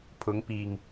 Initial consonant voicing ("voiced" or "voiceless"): voiceless